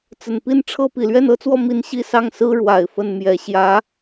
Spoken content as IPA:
t͡sə˨˩npi˥˩nʈ͡ʂʰɤ˥ pi˨˩lɥɛ˥˩nɤ˥t͡swɔ˥˧ mi˥˧n ɕi˥˧sɑ˥˩ŋsɹ̩˥ ɻwa˨˩ɪ̯fə˥˩nmjɛ˧˥ ɕjä˧˥

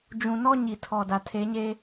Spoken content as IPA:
d͡ʒũ˨nɔ˦ɲi˨ tʰɔ˨da˨ tʰe˨˦ɲe˦

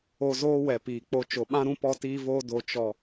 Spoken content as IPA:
o˧zoː˦ wɛ˨piː˨k͡po˧ t͡ʃo˨ɓã˦ɾũ˦ pɔ˧tiː˧voː˧ do˨t͡ʃɔ˨

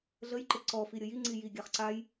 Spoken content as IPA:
ɮəjǃe ǀɔ fiɾʲəjiŋ͡ǀi jiɡʲaχ ǀaj

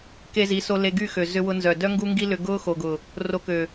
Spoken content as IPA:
ke˧zi˨˦so˧ le˧ɡy˦˨xø˨ zʏ˧wʊ˧nzœ˨ dœ˦ŋɡu˦ŋɡi˦ lʏ˧ɡʊː˦xo˨ɡʊ˨ | ro˧kø˨

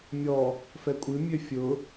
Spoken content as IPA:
mʲɔ | fɛkʷʼɨ mʲøfʲʊ

